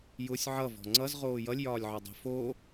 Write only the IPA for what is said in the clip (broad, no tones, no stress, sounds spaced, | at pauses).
j ʊ sʲ ʕ ʌ v ɔ̤ ŋ͡ǀ ʌ z ʁ oː j ʌ lʲ j ɒː lʲ ʕ ɒ dˤ e̤ f o